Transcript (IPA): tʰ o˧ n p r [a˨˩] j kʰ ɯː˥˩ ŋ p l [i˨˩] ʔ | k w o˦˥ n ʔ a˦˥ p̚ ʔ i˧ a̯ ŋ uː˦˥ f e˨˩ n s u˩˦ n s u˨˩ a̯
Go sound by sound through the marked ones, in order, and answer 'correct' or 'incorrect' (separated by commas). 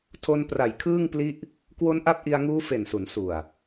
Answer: correct, incorrect